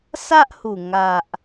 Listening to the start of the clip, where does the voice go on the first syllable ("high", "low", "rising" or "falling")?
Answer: high